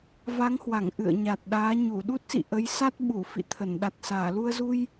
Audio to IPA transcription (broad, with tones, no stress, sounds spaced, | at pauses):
v a˨˦ ŋ h w a˧˩ ŋ ʔ ɨ̰˧˨ ə̯ ɲ a˨˩ t̚ ɗ aː˨˦ ɲ u˧˩ ɗ u˦˥ t̚ s ḭ˧˨ ʔ ə˨˦ j s a˦˥ t̚ ɓ u˧˩ f ḭ˧˨ t̪ʰ ə˧˩ n ɗ a˨˩ t̚ s aː˧˩ l u˧ ə̯ z u˧ j